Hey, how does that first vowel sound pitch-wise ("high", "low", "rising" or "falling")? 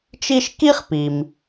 high